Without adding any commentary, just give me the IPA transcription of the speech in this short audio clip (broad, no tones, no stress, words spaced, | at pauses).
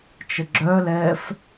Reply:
t͡ʃəɡ͡ǁœlɛːf